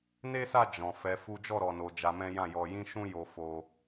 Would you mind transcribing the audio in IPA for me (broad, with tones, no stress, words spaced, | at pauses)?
ne˦sa˦˨ d͡ʒɔ̃˨ fɛ˨˦fu˦ d͡ʒɔ˦˨ɾɔ˨no˨ d͡ʒa˧mɛ̃˦ jã˦˨jɔ˧jĩ˦ ʃũ˦ jo˧fo˧